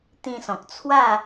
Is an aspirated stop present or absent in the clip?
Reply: present